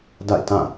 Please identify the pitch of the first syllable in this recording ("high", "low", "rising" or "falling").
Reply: falling